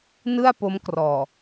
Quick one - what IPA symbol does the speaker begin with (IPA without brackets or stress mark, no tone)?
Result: n